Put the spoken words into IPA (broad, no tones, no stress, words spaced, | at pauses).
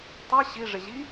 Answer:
tˤi ɕiʐɪʑi